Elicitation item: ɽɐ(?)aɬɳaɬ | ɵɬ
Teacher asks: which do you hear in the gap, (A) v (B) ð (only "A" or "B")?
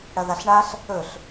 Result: B